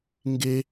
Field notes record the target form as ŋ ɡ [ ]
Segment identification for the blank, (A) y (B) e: B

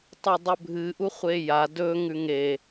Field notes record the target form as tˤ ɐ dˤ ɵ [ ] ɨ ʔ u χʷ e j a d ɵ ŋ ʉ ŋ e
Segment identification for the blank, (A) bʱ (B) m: A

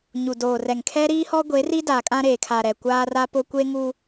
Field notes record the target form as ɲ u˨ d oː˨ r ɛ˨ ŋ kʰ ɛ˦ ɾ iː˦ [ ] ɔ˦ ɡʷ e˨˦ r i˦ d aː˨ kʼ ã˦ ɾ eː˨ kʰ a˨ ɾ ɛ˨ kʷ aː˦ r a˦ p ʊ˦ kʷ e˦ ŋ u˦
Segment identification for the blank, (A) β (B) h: B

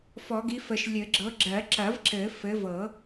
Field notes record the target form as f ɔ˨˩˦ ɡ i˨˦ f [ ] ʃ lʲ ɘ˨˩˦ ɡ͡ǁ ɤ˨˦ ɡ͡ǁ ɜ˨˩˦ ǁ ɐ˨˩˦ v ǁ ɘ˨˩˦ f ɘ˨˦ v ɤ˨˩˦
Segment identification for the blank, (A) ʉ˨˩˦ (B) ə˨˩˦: B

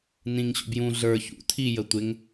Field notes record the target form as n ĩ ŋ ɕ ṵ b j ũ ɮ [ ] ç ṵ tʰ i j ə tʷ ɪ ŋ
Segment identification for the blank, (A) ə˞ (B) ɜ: A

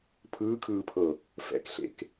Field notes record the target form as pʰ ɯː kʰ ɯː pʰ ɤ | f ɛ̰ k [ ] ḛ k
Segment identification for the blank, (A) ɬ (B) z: A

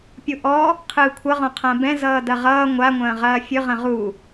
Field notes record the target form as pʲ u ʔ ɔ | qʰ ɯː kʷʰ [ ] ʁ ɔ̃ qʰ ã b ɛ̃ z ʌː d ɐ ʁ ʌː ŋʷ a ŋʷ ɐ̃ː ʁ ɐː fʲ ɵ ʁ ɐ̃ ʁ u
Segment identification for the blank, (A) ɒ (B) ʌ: B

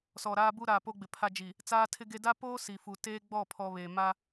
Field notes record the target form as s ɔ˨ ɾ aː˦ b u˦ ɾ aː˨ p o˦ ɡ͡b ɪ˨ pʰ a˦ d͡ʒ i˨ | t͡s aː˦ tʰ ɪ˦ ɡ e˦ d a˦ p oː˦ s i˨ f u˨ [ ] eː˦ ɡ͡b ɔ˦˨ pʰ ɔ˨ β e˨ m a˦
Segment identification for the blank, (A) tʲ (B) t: B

